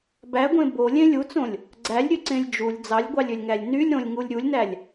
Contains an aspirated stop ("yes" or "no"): no